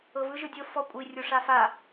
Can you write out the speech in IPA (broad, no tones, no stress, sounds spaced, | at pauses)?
ɤ v ɯ ʒ ɯ dʲ o f ɔ kʷʼ i rʲ o ʂ a f a